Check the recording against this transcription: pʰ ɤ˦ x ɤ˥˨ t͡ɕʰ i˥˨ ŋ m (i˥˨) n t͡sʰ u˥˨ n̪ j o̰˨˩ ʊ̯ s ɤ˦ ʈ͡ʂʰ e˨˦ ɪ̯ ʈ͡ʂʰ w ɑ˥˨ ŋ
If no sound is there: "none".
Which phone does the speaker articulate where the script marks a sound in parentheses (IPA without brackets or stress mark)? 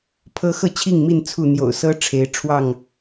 i˥˨